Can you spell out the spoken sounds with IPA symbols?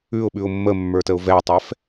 ʉ ʊ̯ ɓ ʉ ʊ̯ mː ə mː ə˞ t ə ʊ̯ v ɛ tˤ ɛ f

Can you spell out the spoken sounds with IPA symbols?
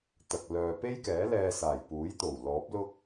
t̪ ɐ˨ k̚ l œː˨ p e˥ j k ɛː˨˥ l ɛː˧ s aː˨˩ j p uː˨˥ j t̪ o˨˩ w l ɔː˨˥ p̚ l ʊ˥ k̚

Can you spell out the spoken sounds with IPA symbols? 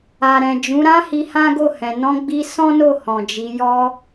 a˨ ɾ ɛ̃˨ d͡ʒ ũ˨˦ ɾ ã˦ h i˧ h ã˦ ɡ o˦˨ h ɛ̃˨ n ɔ̃˧ ɡ͡b i˧ s ɔ̃˦ n o˦˨ h ɔ̃˨ d͡ʒ i˨˦ j ɔ˧

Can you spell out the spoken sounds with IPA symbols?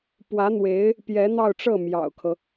p w ä˧˥ n̪ w e˧˥ ɪ̯ | p j ɛ˧˥ n̪ ɑ˥˧ ʊ̯ ʈ͡ʂ ɤ˥˩ m j ɑ̰˨˩ ʊ̯ kʰ ɤ˦

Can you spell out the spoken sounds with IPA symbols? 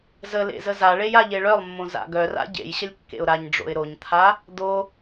z ə l ḛ z ə z a ɭ e j a ʎ e ɭ œ lˠ mː õ z a̰ ɡ œ r a̰ ɟ ḛ j ɕ ə lʲ kː ḛ ʊ̯ ɾ a ɲ ɖ͡ʐ o̰ ɪ̯ ɾ o ɲ t̪ʰ a | d̪ o

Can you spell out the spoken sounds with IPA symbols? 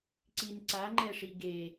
ǀ i n ǀ a ŋ͡ǃ ɛ ʂ i ɡ e

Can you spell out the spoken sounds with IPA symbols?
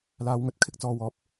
l aː˧ w ŋ ɵ˧ t̚ kʰ ɪ˥ k̚ t͡s ɔː˨˧ w ɔː˨˥ p̚

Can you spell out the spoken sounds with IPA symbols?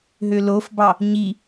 ɦ ø l o f b ɑ | ɲ i

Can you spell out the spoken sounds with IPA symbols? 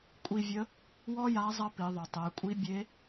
kʷʼ i˧ vʲ ə˧˥ | w ɔ˥ j a˧˥ zˤ ɐ˥ p i˩˧ ðˤ ø˩ tˤ e˩˧ kʷʼ i˧˥ bʲ e˧˥

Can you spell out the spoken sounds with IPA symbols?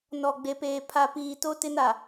n ɔ˨ ɡ͡b e˨ p eː˨ pʰ a˨ p iː˨ t o˦ t ɪ˦ n a˨

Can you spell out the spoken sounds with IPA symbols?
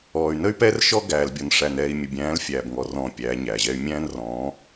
ɔː˨ y̯ n ə˦ y̯ p ɛː˦ r ʃ ɔ˦ ɡ æː˨ l bʲ ɔ˨ n ʂ æ˨ n ɛː˨ i̯ mʲ ə˨ bʲ æ̃ː˨˦ l fʲ æː˨ b ŋ ɔ˨ r ɔ̃ː˨ pʲ æ˨˦ ɲ æ˨ ʑ ɛ˦ y̯ mʲ æ̃ː˦ n r ɔ̃ː˨˦

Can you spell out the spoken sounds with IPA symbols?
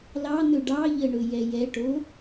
l ɑ n̪ ɵ ɖ ɑ ʎ ə ɳ ɵ j ɛ j ɛ ʈ o

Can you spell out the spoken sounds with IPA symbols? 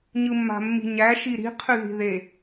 ɲ ɯ mː a̤ mː i̤ ɲ æ ʃ i ɾ i̤ qʰ y ð i̤ ð e

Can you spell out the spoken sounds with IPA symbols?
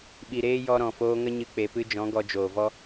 ɓ i˨ ɾ eː˧ j ɔ˧ ɾ ɔ̃˨ f oː˧ ŋ ə˦ ɲ ɨ˦ k͡p e˧ p ɨ˦ d͡ʒ ɔ̃˨˦ ɡ ɔ˧ d͡ʒ oː˨ v ɔ˦

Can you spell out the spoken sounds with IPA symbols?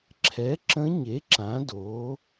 ǁʰ ɛ˩˥ ǁ ə̃˧˥ ɲ e˩˥ ǁ ã˩˥ d oː˩˥

